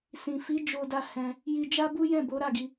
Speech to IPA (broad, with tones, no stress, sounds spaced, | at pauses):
s ĩ˨ f i˨˦ d͡ʒ o˧ d a˧ h ɛ̃˧ | j i˧ d͡ʒ a˦ b u˦ j ɛ̃˦˨ b o˨˦ ɾ a˦˨ ɡ i˧